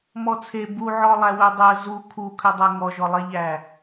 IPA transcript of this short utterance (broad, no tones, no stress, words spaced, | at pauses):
mɔt͡sʰe buʕɔ lˠæwødˤɜ zu kʰukʰʏdˤɜ ŋɔʒɔlˠeʎæ